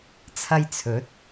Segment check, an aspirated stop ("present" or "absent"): present